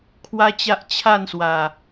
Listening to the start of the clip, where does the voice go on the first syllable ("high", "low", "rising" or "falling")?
high